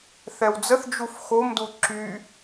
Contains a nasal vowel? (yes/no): no